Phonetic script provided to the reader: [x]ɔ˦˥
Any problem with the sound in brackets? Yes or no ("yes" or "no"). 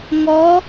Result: yes